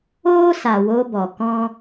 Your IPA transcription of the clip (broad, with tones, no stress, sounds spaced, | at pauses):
oː˦ s a˨ w o˧ b ɔ˨ k ɔ̃˦